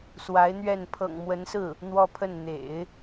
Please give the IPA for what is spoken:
swa˧˥ɪ̯n̪ɥɛ˥˩n pʰɤ̰˨˩ŋmwə˧˥nsɹ̩˥˩ | n̪wɔ˥˧pʰə˥˩n n̪ḛ˨˩˦ɪ̯

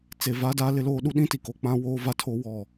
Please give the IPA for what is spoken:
t͡se˨va˦daː˦ lɪ˦loː˦ ɗu˦ɗĩ˦ti˨ko˨ k͡pã˦woː˦va˦ tʰo˦wɔ˦˨

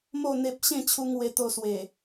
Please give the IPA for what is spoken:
mo˥˧ n̪e˦p̚ ɕẽ˥˧t͡ɕʰu˧ŋ we˧t̪o˧swe˨˩

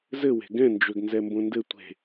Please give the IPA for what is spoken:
zɘwe̤ ɡɛ̃nd͡ʒøɡ nzɛmbõndɘ tʷe̤

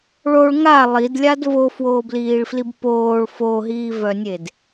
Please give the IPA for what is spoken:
ɭoɭ ŋa lˠidlʲad vofwoːbliːɭflib poːɭ foɦiːvœnʲed

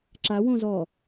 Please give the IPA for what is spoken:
ǁa wõzɔ

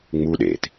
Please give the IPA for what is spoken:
ŋ͡mu ɗḛt

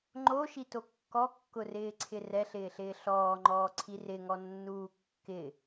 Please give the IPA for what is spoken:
ŋ͡ǃoʃito kːɔkːʊrɪːǀʰɪ rɛɬɪːɬɪː ɬɔːŋ͡ǃɔːǀʰi rɪŋɔnːuː kːɪ

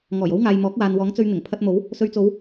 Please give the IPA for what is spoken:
ŋɔː˨˩jo˥wŋaː˨j mɔː˨˥k̚waː˨nwɔː˨˥ŋt͡sɵ˧ɥ n̪ɪ˨˩ŋpʰɐ˧t̚ mo˨˥w | sɵ˧ɥt͡so˨˧w

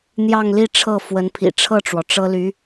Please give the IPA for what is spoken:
n̪jɑ˥˧ŋli˥˧ ʈ͡ʂʰɤ˥˩fwə˧˥npʰḭ˨˩ ʈ͡ʂʰɤ˥˩ʈ͡ʂwɔ˩ ʈ͡ʂɤ˥ly˧˥

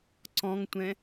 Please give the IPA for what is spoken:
ǀɔ̃ŋtʷɛ̃

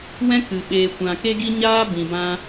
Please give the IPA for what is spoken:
wɛ̃˦kɨ˨ ɓeː˨kʷã˨ ke˦ ɡi˦ɲaː˦ bĩ˨bã˧

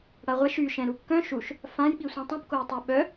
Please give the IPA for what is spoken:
ɽaʁʷɛʃ y ʃɛ̃ɾukːœ̃ ʃuʃ | fãjɓisʷĩ tˤũpkoj tˤœɓœ

